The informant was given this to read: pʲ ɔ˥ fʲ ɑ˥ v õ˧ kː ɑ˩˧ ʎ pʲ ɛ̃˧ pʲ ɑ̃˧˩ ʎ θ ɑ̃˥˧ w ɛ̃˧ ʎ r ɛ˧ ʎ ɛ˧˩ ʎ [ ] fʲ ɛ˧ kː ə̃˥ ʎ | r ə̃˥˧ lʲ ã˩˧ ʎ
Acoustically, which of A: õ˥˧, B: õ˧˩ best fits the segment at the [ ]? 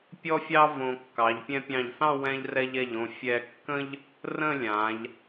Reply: B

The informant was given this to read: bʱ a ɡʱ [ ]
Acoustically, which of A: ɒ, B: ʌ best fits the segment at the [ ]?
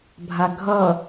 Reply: B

